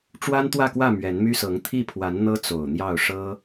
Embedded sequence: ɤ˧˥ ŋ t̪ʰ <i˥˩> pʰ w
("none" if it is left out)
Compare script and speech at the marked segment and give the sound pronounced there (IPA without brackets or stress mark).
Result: i˥˩